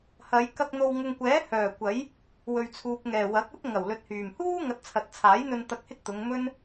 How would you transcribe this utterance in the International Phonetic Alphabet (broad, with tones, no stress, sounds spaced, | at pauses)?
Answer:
h ɐ˨˧ j k ɐ˧ k̚ n̪ o˨ w ŋ ʊ˨ ŋ kʷ ɛː˨˥ h œː˨˩ kʷ ɐ˨˥ j | w ɵ˨ ɥ t͡sʰ uː˨ p̚ ŋ ɛː˨˩ w ɐ˨˥ k̚ ɐ˥ t̚ ŋ ɐ˨˩ w l ɵ˨˥ t̚ h yː˨˩ m h uː˥ ŋ ɐ˨˥ t̚ t͡sʰ ɐ˨ t̚ t͡sʰ aː˨˥ j n̪ ɵ˧ n t̪ ɐ˧ k̚ h ɪ˥ k̚ t̪ ʊ˨˧ ŋ m ɵ˥ n